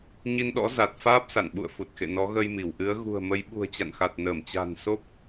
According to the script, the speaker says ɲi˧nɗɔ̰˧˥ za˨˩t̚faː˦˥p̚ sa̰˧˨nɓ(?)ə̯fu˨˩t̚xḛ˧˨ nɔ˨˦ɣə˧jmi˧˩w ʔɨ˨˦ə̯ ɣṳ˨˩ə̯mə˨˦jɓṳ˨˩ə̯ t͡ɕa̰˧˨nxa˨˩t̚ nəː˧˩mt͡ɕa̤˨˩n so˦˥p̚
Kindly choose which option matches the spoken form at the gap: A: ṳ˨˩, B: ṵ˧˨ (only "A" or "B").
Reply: B